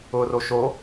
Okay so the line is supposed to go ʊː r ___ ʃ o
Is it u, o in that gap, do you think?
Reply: o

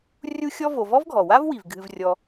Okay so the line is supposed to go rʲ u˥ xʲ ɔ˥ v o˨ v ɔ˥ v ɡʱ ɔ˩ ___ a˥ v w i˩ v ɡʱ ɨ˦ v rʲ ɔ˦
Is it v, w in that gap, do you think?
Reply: w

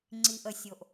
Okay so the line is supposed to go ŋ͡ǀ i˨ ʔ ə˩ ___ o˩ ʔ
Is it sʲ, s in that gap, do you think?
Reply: sʲ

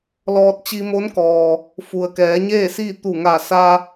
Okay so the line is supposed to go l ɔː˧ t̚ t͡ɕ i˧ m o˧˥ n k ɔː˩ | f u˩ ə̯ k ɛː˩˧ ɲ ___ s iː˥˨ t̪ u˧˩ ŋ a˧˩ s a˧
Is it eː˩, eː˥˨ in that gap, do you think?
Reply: eː˥˨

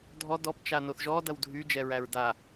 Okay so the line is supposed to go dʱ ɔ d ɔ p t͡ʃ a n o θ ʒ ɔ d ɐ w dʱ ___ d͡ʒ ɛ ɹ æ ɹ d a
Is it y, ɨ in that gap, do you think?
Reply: y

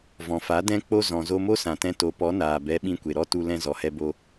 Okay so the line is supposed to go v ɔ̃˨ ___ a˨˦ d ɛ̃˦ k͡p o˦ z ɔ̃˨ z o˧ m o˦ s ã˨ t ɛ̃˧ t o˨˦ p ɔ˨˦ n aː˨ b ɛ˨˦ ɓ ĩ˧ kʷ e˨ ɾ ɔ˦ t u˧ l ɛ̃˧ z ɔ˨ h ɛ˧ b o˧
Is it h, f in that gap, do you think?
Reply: f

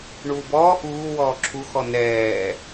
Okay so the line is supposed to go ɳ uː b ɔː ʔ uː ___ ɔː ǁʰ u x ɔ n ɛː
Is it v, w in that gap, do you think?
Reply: w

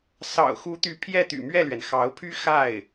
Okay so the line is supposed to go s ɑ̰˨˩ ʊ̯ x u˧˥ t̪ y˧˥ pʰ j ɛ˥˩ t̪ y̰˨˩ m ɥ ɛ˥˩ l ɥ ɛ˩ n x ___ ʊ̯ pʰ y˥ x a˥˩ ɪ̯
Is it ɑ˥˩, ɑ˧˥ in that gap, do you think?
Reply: ɑ˧˥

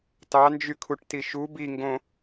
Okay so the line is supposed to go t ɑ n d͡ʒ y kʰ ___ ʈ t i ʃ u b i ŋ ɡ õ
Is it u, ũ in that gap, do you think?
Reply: u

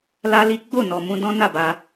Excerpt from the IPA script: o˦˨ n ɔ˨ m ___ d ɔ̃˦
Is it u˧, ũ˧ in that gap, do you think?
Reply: ũ˧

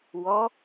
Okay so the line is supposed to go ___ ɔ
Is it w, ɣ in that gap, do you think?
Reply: w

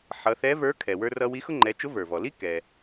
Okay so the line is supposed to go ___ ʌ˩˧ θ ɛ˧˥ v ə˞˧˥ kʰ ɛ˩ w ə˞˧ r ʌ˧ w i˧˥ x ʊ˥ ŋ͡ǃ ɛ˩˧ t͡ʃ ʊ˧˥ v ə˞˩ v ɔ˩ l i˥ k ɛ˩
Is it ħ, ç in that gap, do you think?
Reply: ħ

